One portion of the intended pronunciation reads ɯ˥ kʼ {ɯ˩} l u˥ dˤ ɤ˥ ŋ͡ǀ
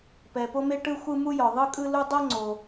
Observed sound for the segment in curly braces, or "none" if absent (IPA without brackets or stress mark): ɯ˥